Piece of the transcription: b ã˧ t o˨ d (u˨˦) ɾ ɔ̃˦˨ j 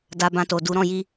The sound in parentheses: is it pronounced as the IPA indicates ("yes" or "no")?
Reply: yes